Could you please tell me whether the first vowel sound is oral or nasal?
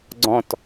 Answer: nasal